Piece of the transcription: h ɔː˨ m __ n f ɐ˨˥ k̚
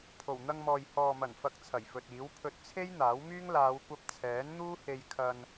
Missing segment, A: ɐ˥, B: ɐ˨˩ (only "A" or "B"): B